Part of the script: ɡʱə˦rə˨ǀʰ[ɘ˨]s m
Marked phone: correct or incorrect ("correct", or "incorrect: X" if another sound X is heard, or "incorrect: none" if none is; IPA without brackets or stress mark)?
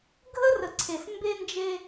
incorrect: e˨